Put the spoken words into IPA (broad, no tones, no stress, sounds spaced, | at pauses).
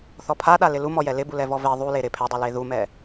θ ɔ pʰ a ɗ a l ɪ l u m ɔ j ɛ l ɪ b u l ɛ v ɔ v e ðˤ u l e ɾ ɪ pʰ ɛ dˤ u l e ð u m ɛ